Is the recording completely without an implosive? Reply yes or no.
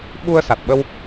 no